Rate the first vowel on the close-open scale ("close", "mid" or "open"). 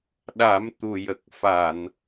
open